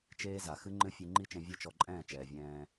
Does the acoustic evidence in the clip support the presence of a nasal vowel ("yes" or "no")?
yes